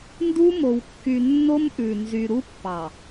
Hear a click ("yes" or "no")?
no